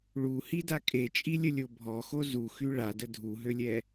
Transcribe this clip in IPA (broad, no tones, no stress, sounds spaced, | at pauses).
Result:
ɭ u h i d a kʼ e t͡ʃʼ i lʲ ə lʲ o bʱ ɔ x o z u x y ɭ a d ə dʱ u ɦ ø lʲ ɛ